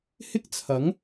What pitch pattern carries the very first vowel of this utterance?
high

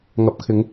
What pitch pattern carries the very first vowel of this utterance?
rising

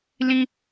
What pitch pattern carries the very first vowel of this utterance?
high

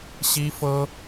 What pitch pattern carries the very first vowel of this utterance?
high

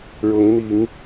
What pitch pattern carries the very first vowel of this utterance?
rising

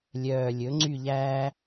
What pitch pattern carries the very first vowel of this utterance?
low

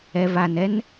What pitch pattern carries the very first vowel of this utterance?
low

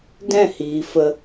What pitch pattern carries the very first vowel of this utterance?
falling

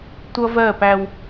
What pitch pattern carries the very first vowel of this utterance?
high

